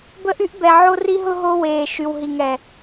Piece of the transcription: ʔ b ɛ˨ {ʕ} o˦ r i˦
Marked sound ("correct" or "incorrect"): correct